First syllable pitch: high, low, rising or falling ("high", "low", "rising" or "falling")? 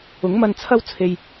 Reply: rising